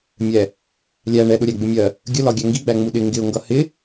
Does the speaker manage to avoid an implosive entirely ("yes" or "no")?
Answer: no